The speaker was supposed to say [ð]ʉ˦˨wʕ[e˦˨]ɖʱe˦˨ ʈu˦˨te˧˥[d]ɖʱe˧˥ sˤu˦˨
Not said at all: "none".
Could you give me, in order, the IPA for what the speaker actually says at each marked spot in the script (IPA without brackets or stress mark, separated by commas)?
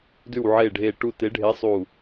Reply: d, e˦˨, none